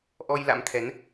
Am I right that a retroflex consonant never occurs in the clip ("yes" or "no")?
yes